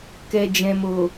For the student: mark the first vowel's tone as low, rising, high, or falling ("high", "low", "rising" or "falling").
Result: low